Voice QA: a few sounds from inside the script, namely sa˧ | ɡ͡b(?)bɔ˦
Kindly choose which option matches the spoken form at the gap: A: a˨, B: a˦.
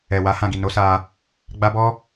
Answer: B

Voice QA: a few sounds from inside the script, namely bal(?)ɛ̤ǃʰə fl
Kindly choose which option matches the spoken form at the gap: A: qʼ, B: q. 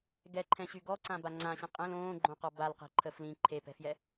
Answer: B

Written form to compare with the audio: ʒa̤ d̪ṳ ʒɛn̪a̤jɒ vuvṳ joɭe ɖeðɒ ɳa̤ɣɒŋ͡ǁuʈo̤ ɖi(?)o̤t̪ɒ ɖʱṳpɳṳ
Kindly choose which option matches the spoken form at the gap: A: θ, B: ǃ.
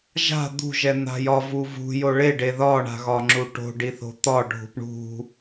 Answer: A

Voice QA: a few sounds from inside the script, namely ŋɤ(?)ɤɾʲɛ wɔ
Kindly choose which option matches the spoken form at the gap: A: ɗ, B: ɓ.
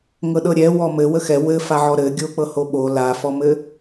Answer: A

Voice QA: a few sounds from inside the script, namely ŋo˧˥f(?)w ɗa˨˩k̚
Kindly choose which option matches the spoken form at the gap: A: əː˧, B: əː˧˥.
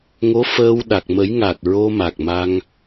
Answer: A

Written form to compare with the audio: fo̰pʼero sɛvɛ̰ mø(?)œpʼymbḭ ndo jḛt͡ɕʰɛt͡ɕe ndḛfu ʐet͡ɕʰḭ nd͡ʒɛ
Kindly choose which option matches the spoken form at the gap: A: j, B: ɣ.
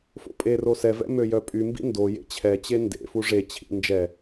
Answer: A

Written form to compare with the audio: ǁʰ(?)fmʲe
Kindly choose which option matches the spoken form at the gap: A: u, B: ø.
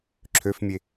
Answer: B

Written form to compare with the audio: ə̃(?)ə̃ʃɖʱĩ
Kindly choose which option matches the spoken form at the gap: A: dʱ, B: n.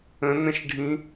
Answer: B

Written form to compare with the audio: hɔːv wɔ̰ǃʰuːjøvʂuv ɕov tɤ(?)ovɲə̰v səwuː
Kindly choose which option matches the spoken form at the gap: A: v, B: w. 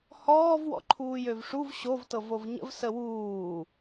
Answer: A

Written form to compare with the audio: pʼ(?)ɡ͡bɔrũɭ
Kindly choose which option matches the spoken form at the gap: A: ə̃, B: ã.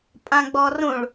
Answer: B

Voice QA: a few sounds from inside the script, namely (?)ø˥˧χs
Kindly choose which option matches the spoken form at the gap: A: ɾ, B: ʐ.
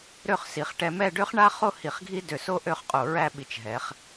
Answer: A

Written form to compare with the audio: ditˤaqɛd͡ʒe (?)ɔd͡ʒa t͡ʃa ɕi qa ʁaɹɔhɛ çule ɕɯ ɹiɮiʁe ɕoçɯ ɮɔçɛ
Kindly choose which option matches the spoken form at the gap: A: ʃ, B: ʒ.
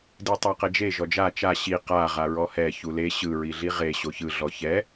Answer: B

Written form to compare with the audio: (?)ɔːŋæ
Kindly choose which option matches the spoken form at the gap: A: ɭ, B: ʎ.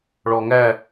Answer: A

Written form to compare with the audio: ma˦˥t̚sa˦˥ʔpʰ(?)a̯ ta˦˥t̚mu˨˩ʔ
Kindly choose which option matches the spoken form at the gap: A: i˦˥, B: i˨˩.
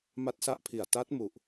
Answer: B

